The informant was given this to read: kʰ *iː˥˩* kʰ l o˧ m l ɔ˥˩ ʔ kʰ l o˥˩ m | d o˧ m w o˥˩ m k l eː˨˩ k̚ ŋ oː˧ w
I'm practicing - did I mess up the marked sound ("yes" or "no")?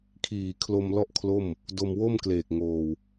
yes